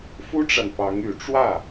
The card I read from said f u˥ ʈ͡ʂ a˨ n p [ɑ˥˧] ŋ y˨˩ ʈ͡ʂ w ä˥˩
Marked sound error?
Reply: yes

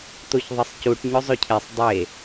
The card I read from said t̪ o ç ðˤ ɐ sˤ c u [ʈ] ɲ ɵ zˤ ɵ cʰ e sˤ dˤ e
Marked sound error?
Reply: no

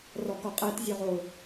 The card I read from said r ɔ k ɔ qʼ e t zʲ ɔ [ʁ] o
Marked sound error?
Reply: no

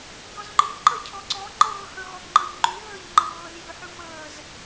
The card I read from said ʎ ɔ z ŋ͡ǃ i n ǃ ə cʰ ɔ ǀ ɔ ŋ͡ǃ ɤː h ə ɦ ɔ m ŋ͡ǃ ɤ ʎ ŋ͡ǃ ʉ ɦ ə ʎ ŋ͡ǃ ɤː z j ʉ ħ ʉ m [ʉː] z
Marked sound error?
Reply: yes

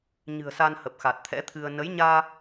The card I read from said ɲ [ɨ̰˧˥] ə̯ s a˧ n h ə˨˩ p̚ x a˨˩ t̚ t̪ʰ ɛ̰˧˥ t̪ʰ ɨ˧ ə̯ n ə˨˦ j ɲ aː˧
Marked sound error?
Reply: yes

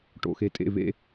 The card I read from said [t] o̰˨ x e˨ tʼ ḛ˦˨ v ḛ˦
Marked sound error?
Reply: yes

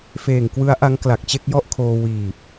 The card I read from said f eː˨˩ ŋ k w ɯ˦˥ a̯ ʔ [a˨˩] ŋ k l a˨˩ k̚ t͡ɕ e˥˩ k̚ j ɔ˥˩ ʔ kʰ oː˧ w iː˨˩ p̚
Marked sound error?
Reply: yes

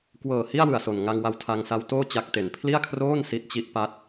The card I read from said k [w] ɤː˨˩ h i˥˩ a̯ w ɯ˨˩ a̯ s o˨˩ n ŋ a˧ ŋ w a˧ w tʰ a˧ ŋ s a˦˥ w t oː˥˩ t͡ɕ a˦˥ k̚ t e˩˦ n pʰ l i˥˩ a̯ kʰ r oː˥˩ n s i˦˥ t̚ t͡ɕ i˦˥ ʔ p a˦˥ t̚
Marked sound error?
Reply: no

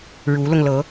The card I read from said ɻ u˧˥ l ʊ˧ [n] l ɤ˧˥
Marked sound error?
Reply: yes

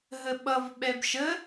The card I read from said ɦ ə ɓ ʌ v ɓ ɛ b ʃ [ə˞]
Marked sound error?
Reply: yes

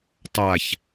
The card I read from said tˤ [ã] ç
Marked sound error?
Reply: yes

